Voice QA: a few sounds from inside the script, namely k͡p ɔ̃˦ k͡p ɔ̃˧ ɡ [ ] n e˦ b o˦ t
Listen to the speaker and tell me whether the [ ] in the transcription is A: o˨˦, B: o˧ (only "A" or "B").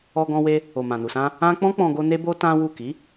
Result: B